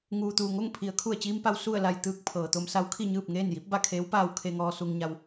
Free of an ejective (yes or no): yes